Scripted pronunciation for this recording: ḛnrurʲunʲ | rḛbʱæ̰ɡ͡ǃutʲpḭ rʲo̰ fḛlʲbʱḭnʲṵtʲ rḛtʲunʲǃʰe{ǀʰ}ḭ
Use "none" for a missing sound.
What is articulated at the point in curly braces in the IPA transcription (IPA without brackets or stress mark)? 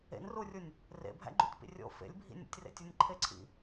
ǀʰ